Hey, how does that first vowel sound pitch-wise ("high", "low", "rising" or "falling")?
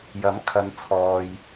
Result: rising